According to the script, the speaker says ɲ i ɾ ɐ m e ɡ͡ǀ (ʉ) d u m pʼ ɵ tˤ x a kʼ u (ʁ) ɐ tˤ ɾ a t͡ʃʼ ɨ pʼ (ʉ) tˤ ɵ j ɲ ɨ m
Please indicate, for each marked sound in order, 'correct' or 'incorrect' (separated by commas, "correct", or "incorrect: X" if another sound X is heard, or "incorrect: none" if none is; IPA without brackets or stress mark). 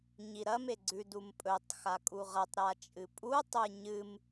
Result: correct, correct, incorrect: u